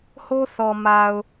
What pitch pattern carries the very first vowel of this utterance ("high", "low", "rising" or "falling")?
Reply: high